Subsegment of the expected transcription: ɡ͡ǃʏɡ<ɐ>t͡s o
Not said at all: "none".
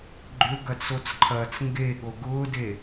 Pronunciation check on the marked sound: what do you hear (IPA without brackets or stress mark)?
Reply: ɐ